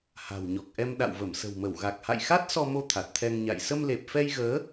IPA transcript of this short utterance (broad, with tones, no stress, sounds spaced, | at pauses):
h a̤˨˩ w ɲ ɔ˨˩ k̚ ʔ ɛ˧ m ɗ a̰˧˨ w v ə˧˩ m s ə̤˨˩ w m ə˧˩ w ɣ a˨˩ k̚ h a̰˧˨ j x a˦˥ t̚ s ɔ˧ m o˧ t̪ʰ a˨˩ t̚ t̪ʰ ɛ˧ ŋ ɲ a̰˧˨ j s ə˧ m l e˨˩ p̚ f ɛ˧ j ɣ əː˨˦